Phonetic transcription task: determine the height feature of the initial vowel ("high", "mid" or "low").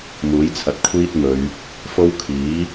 high